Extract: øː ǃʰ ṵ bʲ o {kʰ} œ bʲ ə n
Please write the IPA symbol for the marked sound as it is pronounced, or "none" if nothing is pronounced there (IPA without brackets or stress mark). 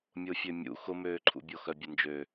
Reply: x